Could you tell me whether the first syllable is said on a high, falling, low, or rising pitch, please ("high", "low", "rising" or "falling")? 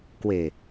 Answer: low